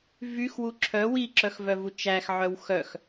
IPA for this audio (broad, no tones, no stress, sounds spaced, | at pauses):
v y x w u ǁʰ œ w i ǁ œ x v œ v u t͡ʃ æ x ʕ œ w x œ x